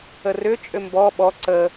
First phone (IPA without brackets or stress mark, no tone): ə